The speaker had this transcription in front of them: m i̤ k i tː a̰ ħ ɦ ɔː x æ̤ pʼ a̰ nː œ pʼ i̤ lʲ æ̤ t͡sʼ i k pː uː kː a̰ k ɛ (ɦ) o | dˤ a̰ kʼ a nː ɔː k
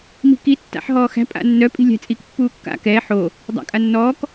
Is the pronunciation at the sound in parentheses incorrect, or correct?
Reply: incorrect: ħ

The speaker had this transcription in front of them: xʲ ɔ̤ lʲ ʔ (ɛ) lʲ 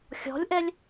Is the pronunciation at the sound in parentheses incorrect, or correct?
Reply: correct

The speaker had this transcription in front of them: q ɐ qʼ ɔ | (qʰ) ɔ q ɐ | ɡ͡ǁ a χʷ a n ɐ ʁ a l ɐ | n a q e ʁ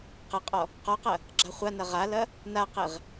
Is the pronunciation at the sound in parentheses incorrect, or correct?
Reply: incorrect: q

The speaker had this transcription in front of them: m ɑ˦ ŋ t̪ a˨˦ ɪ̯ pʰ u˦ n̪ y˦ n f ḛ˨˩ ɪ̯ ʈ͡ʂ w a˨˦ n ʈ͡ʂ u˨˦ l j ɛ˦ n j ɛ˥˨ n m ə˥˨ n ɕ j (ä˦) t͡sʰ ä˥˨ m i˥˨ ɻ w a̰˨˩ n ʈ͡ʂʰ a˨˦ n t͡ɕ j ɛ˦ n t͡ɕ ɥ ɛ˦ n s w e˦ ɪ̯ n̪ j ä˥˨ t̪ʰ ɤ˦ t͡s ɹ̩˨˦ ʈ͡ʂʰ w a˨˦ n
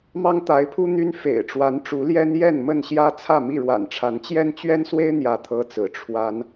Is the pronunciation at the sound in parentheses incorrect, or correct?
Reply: correct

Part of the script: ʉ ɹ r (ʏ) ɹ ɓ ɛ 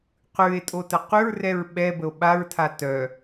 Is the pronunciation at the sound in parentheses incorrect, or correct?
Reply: incorrect: ɛ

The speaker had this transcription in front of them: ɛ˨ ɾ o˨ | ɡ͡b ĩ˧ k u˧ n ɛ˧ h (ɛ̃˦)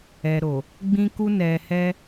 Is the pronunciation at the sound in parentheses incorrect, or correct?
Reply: incorrect: ɛ˦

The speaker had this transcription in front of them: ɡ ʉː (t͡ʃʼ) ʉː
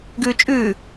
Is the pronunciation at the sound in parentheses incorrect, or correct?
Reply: correct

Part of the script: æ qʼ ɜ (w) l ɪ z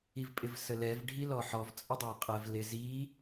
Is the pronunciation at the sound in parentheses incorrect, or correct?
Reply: incorrect: v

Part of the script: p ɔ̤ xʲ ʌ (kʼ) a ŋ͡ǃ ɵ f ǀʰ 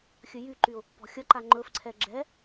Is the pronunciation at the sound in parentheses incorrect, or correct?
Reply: incorrect: ǃ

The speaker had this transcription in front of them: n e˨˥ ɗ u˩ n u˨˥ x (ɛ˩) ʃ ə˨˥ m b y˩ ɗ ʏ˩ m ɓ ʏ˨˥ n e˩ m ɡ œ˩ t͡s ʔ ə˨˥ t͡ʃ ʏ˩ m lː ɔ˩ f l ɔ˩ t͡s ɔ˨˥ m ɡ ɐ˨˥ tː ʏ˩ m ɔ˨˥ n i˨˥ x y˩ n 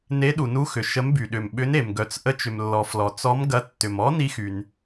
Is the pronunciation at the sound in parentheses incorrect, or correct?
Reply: incorrect: ʏ˩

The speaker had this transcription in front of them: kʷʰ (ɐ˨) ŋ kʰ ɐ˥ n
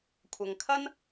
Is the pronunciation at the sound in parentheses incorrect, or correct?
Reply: correct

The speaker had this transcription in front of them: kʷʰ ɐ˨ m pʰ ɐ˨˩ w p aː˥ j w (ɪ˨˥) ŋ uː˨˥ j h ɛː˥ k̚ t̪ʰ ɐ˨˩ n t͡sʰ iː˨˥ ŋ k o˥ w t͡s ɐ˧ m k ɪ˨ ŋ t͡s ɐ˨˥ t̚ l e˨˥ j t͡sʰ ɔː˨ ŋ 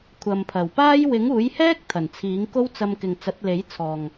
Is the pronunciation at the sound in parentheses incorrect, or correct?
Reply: correct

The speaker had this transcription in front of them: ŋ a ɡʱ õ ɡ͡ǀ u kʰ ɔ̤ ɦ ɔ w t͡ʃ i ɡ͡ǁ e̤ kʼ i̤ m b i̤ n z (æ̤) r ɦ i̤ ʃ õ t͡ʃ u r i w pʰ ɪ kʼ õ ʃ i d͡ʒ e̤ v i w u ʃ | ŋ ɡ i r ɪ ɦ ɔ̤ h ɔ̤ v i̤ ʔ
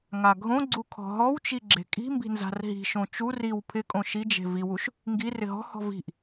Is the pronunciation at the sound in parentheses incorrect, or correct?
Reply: incorrect: a̤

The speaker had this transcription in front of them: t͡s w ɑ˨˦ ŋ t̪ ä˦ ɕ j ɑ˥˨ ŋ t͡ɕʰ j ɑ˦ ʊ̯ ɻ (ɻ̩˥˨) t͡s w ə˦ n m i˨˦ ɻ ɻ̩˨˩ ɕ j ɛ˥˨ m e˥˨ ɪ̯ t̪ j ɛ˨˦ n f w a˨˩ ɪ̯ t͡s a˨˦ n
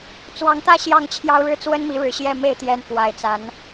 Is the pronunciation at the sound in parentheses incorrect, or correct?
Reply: incorrect: ɻ̩˦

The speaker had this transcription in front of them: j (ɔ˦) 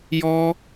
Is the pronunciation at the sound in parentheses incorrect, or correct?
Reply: correct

